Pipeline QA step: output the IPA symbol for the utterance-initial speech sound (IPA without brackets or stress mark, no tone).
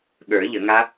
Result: ɠ